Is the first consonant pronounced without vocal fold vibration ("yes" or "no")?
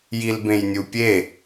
no